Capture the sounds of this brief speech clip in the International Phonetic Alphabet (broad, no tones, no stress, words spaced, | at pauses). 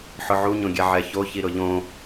ħʊʕuɲõɡʲɛ ʕɛço çiɾʊʎõ